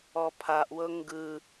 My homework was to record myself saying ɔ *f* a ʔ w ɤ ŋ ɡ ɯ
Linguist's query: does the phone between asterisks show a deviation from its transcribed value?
yes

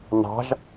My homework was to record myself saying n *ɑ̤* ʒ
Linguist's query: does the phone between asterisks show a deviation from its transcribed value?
no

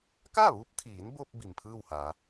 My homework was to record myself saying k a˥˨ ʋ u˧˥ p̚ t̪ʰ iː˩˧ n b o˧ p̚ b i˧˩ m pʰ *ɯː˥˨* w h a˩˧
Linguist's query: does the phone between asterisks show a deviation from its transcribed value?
no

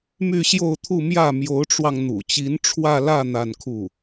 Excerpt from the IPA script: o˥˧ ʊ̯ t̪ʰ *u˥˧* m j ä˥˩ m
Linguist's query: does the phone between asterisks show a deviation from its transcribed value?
no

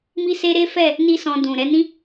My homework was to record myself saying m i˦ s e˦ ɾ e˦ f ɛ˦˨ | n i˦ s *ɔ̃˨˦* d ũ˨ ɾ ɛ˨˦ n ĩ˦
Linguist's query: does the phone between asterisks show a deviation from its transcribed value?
yes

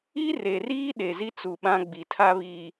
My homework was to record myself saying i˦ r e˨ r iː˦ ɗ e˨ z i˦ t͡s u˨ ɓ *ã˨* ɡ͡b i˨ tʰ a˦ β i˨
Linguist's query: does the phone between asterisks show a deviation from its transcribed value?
yes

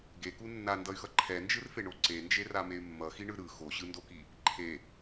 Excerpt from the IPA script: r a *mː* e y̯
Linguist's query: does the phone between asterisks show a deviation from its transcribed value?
yes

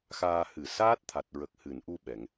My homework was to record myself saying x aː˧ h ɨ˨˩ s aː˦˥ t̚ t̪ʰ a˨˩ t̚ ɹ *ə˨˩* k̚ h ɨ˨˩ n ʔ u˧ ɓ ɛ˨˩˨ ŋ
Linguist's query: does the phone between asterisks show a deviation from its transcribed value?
no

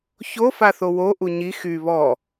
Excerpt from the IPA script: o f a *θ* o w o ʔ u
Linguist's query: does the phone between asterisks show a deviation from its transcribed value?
no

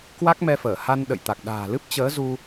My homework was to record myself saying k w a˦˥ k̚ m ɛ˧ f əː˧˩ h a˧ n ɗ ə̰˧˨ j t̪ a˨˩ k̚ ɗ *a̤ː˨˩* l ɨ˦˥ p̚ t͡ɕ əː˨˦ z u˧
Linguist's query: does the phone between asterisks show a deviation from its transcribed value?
no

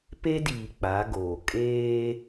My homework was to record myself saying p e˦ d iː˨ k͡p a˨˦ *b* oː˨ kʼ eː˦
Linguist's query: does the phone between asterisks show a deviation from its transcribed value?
yes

